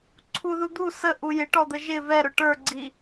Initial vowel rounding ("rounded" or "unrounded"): rounded